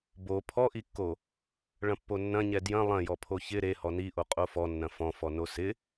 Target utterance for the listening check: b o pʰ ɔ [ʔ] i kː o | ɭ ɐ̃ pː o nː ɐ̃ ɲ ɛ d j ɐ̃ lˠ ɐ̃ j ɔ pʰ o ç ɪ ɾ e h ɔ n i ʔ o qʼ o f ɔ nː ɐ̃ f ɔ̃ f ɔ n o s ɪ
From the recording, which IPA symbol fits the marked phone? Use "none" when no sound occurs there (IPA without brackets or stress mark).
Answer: ʔ